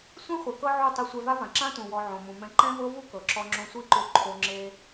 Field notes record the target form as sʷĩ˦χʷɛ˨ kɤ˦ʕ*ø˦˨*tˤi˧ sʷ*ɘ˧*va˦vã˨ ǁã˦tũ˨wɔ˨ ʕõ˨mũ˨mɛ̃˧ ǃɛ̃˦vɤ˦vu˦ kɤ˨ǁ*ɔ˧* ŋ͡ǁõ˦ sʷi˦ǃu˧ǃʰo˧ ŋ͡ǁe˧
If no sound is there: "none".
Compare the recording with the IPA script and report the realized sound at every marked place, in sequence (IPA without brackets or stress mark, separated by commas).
u˦˨, ɛ˧, ɔ˧